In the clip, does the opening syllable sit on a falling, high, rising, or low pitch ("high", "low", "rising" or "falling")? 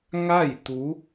falling